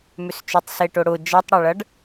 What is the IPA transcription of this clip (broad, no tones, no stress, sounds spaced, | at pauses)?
m ʏ s t͡ʃ ʏ tˤ s e ʈ ʊ ɽ ʊ d͡ʒ ɐ tˤ ɽ ɐ ɭ ɐ ɖ